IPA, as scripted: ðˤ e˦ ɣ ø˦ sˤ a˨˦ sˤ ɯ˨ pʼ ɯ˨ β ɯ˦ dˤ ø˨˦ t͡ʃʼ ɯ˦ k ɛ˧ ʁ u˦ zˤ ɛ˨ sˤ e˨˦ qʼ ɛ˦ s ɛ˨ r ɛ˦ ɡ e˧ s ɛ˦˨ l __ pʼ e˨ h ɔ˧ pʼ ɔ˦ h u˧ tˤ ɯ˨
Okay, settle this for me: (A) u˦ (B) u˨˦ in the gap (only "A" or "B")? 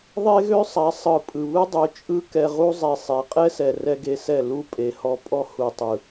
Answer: A